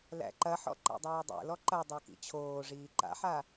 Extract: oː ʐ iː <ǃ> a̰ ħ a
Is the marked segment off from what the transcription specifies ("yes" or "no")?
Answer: no